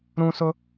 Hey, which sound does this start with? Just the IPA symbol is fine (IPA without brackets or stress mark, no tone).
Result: ɾ